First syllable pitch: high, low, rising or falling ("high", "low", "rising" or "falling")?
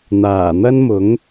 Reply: low